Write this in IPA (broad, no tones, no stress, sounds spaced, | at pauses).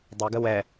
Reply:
dˤ ɵ ɡ ə w ɛ